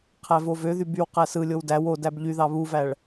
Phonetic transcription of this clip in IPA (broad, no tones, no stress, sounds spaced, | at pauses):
qʰ æ v o v ø ð y b y w q æ s ɯ lʲ o w d æ w o d æ b ʎ y ð ɑ β u v æ ɭ